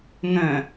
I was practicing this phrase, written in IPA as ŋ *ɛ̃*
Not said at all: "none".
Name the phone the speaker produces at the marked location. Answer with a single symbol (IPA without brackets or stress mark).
œ̃